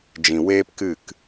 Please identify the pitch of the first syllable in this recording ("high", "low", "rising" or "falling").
low